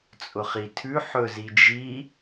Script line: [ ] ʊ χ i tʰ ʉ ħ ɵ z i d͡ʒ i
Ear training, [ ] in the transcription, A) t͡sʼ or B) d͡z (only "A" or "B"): A